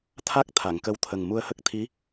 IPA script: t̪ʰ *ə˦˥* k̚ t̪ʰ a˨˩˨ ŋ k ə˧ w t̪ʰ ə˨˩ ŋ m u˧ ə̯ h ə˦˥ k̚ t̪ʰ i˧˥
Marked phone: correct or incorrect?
incorrect